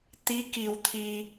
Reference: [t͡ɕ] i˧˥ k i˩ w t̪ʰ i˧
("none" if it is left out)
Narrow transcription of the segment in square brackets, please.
t̪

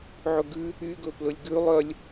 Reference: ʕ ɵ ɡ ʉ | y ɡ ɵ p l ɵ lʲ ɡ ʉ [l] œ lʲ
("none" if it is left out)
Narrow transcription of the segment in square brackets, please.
lˠ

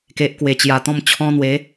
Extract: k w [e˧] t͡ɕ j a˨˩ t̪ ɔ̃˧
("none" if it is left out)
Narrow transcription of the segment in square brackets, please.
e˨˩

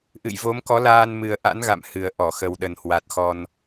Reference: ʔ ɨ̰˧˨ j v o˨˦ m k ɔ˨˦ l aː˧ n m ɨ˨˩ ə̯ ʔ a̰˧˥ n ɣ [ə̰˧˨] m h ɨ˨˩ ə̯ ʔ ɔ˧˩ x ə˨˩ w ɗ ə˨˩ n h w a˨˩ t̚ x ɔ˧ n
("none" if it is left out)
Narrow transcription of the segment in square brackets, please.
a̰˧˨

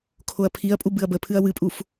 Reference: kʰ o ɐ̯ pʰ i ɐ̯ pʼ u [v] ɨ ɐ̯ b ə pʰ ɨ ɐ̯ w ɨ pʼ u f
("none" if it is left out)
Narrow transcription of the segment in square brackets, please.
b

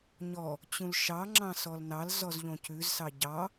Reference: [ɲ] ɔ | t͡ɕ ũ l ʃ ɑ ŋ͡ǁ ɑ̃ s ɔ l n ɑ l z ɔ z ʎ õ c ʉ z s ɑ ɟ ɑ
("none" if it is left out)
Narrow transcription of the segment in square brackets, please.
ɲ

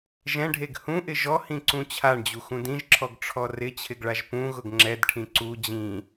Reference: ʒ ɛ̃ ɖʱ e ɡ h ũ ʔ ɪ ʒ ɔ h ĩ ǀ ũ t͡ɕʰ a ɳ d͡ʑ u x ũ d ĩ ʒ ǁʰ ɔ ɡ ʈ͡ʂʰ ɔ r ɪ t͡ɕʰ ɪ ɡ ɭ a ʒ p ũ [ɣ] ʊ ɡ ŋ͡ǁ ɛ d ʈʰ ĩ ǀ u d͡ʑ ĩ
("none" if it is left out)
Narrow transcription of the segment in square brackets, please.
ɣ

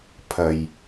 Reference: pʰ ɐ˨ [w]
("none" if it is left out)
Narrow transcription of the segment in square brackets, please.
j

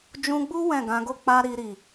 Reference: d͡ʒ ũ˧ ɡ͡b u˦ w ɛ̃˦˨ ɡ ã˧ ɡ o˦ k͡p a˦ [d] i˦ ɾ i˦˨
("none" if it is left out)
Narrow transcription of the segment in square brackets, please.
ɾ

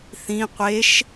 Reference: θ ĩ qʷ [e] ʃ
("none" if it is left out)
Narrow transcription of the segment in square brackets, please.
e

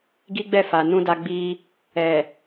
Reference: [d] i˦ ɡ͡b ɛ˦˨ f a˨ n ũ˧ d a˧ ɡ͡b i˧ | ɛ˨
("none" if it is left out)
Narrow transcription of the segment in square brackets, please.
ɡ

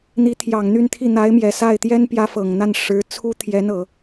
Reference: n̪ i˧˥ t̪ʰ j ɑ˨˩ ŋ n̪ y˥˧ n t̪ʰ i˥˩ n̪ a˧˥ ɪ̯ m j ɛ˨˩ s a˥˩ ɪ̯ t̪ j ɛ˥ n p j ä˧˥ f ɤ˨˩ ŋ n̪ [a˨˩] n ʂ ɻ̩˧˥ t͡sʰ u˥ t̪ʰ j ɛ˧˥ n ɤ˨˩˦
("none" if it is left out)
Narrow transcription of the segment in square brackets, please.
a˥˩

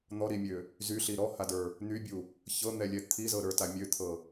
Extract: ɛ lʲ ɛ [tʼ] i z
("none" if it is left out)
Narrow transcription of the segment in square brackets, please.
t̪ʰ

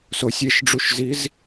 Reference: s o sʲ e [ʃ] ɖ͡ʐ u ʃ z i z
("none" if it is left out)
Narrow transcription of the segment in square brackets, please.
ʃ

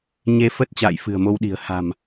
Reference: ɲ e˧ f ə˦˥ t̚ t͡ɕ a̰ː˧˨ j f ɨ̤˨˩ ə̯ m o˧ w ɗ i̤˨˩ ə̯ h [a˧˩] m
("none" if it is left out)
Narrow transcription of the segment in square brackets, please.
a̤˨˩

